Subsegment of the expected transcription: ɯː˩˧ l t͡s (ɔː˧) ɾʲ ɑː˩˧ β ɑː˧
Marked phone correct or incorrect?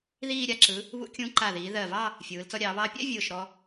incorrect